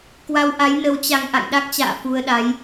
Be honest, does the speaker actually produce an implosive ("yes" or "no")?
yes